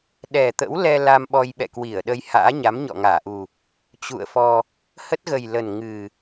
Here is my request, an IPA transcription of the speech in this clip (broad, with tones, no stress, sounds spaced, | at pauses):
ɗ ɛ˨˩ t̪ ə̰˧˥ w l ɛ˧ l a˧ m ɓ ɔ˧ j ɓ ɛ̰˧˨ k w i˧˩ ə̯ ɗ ə˧ j h a̰ː˧˥ ɲ a˨˦ m ɲ ɔ̰˧˨ ŋ aː˧˩ ʔ u˨˩ | t͡ɕ ṵ˧˨ ə̯ f ɔ˧ | h ə˦˥ t̚ ɣ ə˨˩ j l ə˨˩ n ŋ ɨ˨˩